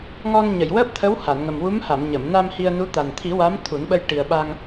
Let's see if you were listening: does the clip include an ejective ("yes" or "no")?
no